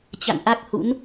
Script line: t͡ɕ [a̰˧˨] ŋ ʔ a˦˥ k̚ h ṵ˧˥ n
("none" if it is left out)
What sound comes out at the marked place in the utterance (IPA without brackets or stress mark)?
a̰˧˨